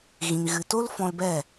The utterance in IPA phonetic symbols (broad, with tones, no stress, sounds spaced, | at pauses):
ɣ ĩ˨ ŋ ɣ ɨ˨ t o˦ l f ɔ̃˧ l b ɛ˦˨